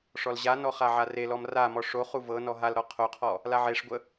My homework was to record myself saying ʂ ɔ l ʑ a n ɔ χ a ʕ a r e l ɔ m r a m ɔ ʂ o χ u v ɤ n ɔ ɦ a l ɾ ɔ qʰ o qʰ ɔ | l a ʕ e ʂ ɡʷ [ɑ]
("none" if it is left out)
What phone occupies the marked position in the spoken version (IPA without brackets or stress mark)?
ə